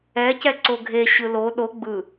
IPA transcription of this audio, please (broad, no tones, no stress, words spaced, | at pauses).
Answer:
ɛ cɛǀoɡʱe ɕɯlo ɗo ɡ͡bɯ